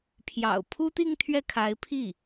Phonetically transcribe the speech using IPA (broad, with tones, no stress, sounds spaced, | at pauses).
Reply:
pʰ j ɑ̰˨˩ ʊ̯ pʰ u˥ t̪ i˥˧ ŋ t̪ʰ ɥ ɛ˥˩ kʰ a˧˥ ɪ̯ pʰ i˥˩